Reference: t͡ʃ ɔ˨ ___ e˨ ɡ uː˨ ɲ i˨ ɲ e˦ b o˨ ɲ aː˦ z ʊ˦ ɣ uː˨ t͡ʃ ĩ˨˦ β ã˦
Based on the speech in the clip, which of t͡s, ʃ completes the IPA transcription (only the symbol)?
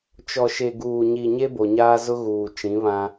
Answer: ʃ